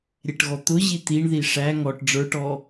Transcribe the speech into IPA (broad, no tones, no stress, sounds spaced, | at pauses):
ɾʲ ɛ ʈ ɣ ɔ t̪ ʊ ʑ i t̪ i ɳ ð i ʂ æ ŋ ɔ ʈ ɖ͡ʐ ə˞ ʈ ɔ